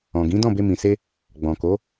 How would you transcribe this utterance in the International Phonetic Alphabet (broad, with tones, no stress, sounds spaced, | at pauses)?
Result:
ɔ̃˨ ɡ ĩ˨˦ d ɔ̃˦˨ b e˧ m ĩ˨ s e˧ | ɡ͡b ɔ̃˨ k o˨˦